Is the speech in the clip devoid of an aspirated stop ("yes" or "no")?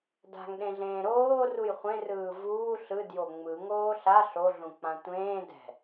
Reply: yes